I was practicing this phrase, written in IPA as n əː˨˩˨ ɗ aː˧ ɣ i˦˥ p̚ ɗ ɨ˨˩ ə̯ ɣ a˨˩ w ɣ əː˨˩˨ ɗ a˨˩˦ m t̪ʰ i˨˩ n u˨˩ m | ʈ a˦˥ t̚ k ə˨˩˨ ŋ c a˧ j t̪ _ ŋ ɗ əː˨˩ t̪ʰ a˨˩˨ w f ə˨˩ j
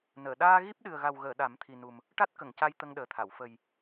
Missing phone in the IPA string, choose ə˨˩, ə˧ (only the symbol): ə˧